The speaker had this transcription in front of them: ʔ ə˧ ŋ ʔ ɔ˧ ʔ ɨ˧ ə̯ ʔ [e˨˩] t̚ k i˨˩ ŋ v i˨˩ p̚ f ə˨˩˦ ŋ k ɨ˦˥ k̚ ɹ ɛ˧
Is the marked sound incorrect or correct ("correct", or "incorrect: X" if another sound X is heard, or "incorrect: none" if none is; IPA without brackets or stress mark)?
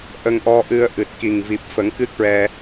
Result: incorrect: ɨ˨˩